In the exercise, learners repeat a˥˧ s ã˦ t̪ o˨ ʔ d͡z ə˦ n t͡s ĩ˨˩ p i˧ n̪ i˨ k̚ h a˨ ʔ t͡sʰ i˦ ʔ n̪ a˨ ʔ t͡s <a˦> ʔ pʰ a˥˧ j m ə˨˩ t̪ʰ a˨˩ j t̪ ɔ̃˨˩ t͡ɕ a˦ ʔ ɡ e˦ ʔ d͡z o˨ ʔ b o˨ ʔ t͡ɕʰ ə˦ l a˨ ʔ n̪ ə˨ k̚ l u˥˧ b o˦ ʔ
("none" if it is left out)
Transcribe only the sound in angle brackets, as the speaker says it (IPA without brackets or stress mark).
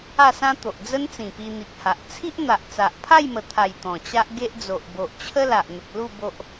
a˨